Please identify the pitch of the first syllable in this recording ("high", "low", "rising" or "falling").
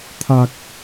low